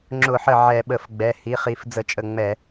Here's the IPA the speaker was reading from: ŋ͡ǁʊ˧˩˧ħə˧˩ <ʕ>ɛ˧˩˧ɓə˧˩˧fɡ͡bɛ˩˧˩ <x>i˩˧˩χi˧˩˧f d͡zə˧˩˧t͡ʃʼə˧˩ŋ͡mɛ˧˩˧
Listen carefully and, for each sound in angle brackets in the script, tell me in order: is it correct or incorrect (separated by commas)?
correct, incorrect